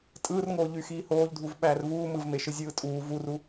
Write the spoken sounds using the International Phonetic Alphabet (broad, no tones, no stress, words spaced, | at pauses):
tʼɯːrŋoː ʎyxiːhoːʎdʱuv ɓæːrvuː mɯvmeʃɯ zʲɯːtʼuː vuru